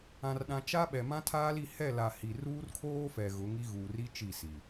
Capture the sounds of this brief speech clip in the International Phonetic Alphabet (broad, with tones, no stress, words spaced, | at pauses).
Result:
ã˨rɗã˨t͡ʃa˦ɓɛ˨ mã˦tʰaː˦li˦˨ hɛ˦˨la˨ hi˨ ruː˦rkʰoː˦ fɛ˨ɣʊ˨˦ ŋi˦ɣuː˨ri˦ t͡ʃi˦˨si˨